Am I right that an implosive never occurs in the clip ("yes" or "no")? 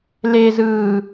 yes